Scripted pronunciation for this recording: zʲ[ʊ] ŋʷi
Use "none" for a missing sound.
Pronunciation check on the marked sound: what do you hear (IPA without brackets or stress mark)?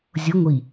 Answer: ʊ